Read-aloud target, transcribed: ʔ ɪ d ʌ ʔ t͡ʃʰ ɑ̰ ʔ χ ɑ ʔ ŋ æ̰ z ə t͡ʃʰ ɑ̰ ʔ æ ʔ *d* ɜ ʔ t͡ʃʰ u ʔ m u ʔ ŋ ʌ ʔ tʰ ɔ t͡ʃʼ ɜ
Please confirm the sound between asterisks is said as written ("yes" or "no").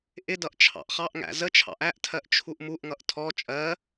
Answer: no